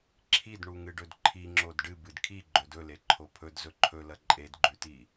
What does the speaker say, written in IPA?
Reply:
ǁʰidɳuŋɨɖɵd ǃʰiŋ͡ǁod ɖɨ bɨdkʰi ɡ͡ǃɵdɵle ǃʰopʰɵd zɵǃʰɵlɐ ǃʼedɡ͡ǃʉti

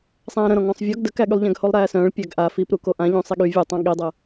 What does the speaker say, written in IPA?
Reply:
sˤæ̃ːɾə̃ɾɔ̃ ŋɔ̃sˤvʲɔɡ dəkæɠylˠ ʎæ̃ɡholˠɾæːsœ̃ːɭ pʲæɡʔa fipɾuko ʔãʎũ sˤiɠy vʲutˤã ɠidˤɤ

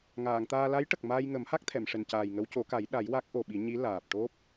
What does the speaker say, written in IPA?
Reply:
ŋaː˨˩˨ŋt̪aː˧ la˧˥j ʈə˨˩k̚maː˧jŋə˨˩˦mha˦˥k̚ t̪ʰɛ˨˩˨mʂɛ˨˩ncaː˨˩jŋə˧˥w co˨˩˦ ka˨˩˦jɗa˨˩˦j wa˦˥k̚ʔo˨˩ɓi˨˩˦ɲi˧˥ laː˨˩p̚ʈo˦˥p̚

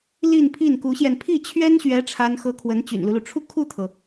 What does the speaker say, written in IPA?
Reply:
li˥˧npʰi˥˩nku˧˥ɕjɛ˧n pʰi˥˩t͡ɕʰɥɛ˥nɕɥɛ˧˥ ʈ͡ʂʰa˥nxɤ˥ kʰwə˧˥nt͡ɕy̰˨˩nlu˦lu˩ ʈ͡ʂʰu˥˧kʰu˥˩t̪ʰɤ˩

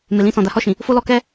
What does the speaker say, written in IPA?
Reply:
me˨lĩ˧sɔ̃˨ da˨˦hɔ˦˨ʃĩ˨ | fo˦lɔ˧kɛ˦

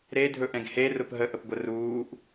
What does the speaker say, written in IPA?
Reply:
ɾe dʱɵʔɛ̃ɡhe rʊpɦə ʔəpɡʷəruːʔ

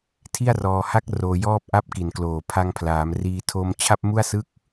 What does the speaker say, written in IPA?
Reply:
tʰi˥˩a̯rɔː˧ha˥˩k̚ roː˧jɔː˥˩p̚ʔa˥˩p̚ ki˨˩nkloː˨˩ pʰa˧ŋpʰlaː˩˦mriː˧ tʰoː˧mt͡ɕʰa˥˩p̚mu˥˩a̯ sɯ˥˩k̚

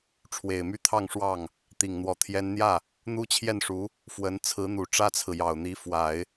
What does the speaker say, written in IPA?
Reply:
ʈ͡ʂʰwe˨˩ɪ̯my˥˧t̪ʰɑ˥˧ŋʂwɑ˥˩ŋ | t̪i˨˩ŋn̪wɔ˧˥t̪ʰjɛ˥n n̪jä˥˩ | n̪u˥t͡ɕʰjɛ˥˩nʂu˧˥ | fwə˧˥n t͡sʰɹ̩˧˥n̪u˨˩ʈ͡ʂä˥t͡sʰɹ̩˨ jɑ˨˩ʊ̯n̪i˧˥ fwa˨˩˦ɪ̯

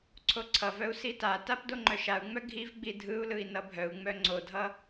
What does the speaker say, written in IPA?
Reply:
ǀʰoǀʰʌvœu̯ sitatap doŋ͡ǃœʃau̯ŋ͡mœ ɡʱivɡ͡bi dʱɯu̯lɯi̯ nʌbʱœu̯ŋ͡mœ ŋ͡ǀodʱʌ

